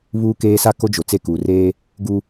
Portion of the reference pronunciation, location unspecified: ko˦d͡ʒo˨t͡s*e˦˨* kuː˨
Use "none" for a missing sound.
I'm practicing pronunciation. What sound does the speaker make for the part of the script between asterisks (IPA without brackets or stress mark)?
e˦˨